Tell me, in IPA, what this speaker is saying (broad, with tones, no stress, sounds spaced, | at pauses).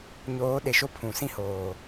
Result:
ɲ oː˨˦ ɗ e˨ ʃ o˦ pʰ ũ˨ s ĩ˦ h oː˨